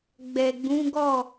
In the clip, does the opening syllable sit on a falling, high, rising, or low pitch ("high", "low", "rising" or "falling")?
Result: low